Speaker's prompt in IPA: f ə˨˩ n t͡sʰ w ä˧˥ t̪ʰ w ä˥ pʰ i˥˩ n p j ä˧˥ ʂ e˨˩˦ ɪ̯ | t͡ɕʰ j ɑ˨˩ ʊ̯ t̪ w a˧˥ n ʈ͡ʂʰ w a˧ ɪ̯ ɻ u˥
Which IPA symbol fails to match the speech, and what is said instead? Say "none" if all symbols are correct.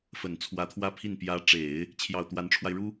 ʂ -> ʈ͡ʂ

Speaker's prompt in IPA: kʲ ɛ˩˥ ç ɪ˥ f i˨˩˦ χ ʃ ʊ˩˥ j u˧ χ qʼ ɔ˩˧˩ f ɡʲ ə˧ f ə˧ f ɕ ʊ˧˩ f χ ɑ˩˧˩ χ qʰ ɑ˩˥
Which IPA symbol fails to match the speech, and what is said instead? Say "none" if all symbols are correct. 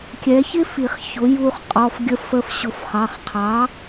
ʃ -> ç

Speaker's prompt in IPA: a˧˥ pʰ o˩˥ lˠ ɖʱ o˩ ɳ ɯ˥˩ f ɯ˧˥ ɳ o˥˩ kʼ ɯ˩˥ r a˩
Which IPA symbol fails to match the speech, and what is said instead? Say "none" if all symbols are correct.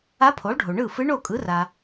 none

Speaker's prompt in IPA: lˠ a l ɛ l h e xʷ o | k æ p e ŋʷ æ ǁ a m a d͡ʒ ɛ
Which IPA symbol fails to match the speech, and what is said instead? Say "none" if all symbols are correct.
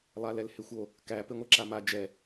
none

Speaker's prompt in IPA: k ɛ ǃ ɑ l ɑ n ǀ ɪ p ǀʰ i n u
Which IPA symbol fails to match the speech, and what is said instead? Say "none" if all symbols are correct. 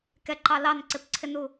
i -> ɪ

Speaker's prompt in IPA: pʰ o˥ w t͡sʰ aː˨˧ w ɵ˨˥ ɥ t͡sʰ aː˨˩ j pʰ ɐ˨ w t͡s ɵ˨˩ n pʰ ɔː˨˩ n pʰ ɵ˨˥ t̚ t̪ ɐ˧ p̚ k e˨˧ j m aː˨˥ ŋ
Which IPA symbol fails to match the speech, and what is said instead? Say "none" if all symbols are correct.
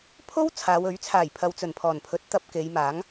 none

